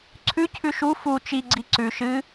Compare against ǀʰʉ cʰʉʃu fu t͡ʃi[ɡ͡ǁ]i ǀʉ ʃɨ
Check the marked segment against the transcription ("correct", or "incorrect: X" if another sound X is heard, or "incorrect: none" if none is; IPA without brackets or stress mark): incorrect: ɡ͡ǀ